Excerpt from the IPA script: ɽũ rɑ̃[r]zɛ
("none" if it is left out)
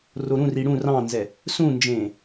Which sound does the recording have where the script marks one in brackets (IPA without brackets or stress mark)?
n